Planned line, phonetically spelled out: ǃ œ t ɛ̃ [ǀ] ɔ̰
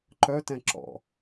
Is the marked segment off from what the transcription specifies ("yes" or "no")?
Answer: yes